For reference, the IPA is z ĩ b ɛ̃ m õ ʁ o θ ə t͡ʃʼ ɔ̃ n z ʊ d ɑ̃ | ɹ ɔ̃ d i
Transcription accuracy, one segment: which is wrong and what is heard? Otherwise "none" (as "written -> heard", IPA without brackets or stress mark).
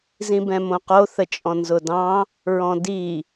ʁ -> q